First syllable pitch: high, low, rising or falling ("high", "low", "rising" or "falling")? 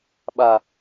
low